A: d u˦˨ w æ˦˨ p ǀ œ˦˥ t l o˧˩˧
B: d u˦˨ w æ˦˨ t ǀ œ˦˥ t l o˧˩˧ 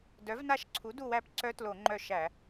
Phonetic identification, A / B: A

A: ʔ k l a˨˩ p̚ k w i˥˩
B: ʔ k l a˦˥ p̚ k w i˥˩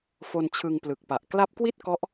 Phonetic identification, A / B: B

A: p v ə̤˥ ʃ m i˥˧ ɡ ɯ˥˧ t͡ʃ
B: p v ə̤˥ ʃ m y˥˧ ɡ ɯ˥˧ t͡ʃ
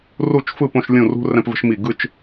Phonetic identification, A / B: A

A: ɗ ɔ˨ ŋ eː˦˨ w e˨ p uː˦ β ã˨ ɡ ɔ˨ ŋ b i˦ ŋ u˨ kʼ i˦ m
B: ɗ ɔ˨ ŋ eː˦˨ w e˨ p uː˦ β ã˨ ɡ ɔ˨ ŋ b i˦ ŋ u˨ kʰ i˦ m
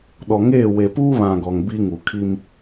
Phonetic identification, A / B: B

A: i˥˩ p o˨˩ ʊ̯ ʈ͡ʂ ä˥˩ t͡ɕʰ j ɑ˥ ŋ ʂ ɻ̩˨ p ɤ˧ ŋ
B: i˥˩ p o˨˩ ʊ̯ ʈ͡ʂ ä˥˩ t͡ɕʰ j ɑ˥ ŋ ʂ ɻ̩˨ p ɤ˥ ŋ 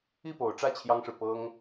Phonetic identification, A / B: B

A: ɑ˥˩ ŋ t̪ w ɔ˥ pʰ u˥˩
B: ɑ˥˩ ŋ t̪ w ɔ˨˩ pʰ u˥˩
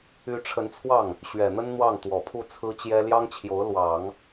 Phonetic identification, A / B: B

